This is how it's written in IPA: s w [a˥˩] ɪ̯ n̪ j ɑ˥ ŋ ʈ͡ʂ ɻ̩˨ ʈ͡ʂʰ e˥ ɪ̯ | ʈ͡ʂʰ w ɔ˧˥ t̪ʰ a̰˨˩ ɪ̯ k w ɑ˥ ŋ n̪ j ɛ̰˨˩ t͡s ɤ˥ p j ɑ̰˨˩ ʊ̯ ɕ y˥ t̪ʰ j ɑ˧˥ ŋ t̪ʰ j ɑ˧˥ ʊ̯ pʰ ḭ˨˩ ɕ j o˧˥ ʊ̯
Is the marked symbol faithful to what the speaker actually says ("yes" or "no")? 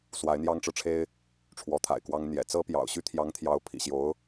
no